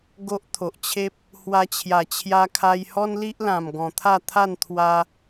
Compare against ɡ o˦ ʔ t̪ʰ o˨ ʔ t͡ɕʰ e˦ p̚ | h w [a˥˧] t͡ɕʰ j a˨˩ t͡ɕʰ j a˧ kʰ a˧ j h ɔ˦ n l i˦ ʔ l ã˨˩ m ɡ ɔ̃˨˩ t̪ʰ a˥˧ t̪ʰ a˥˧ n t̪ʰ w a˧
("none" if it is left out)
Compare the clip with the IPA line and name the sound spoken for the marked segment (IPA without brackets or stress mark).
a˧